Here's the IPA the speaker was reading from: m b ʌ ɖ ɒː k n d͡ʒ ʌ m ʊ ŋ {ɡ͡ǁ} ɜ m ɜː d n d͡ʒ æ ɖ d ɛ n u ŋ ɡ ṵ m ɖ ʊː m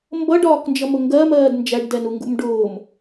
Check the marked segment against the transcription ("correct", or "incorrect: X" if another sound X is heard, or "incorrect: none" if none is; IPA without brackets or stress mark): incorrect: ɡ